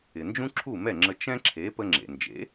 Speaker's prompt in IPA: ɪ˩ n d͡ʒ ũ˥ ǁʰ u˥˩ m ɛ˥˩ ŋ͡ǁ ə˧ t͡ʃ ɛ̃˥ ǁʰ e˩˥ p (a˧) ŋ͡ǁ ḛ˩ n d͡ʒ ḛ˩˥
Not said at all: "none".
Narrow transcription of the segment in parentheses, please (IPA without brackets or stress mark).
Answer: ə˧